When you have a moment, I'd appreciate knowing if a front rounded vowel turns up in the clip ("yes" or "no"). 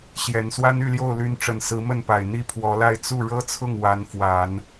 yes